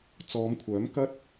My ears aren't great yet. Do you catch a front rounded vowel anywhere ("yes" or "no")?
yes